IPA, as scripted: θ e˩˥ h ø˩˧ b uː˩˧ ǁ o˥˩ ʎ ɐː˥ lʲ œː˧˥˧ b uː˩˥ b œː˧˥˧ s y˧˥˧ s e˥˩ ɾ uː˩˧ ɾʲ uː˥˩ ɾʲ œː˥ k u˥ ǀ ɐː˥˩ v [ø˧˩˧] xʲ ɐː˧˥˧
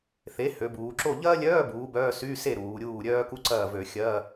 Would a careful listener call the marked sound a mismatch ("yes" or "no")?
no